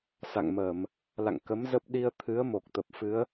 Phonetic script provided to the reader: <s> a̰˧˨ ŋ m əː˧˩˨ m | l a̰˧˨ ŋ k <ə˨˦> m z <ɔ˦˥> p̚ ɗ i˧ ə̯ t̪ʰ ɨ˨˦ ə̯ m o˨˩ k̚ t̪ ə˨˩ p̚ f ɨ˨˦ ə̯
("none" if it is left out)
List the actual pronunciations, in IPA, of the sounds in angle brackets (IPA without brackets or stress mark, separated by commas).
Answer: s, ə˨˦, ə˦˥